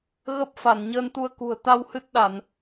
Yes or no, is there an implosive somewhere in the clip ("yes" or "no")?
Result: yes